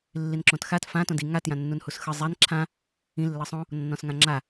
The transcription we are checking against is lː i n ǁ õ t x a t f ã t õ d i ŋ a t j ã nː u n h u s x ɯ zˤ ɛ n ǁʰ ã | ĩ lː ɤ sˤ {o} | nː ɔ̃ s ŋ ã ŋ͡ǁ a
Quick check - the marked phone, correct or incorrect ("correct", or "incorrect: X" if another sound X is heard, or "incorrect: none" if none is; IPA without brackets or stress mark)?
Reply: incorrect: õ